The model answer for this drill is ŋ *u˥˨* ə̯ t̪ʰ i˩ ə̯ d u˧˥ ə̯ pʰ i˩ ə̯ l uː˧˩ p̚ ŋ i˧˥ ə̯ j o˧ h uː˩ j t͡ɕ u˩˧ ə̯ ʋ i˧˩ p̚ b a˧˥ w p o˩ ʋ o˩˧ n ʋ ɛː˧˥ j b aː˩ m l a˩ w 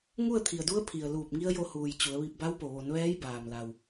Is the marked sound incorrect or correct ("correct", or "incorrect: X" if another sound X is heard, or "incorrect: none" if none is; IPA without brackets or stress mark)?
correct